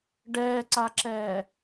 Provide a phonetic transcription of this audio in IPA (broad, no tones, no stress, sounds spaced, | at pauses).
ɖ ɛː ǀ a ǁ ɛː